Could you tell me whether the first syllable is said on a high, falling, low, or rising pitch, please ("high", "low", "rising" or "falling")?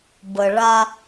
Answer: low